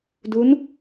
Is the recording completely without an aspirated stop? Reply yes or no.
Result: yes